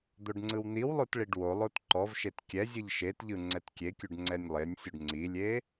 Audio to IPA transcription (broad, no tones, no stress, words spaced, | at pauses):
d̪oɖŋ͡ǀɯwn̪iwlˠot ɭiɖwolˠot ǃɔvʃet kʲɛzʲɯʎ ʃetʎɯ ŋ͡ǀɛtkʲekʲuɖ ŋ͡ǀɛnʲlˠenʲsʲuɖ ŋ͡ǀilʲe